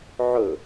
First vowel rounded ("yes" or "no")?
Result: yes